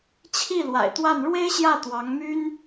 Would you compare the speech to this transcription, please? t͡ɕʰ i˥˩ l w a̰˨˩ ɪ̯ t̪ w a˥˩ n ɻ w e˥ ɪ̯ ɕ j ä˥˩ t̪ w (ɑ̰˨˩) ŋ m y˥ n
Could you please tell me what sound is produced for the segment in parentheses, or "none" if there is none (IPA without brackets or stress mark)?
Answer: ɑ˧˥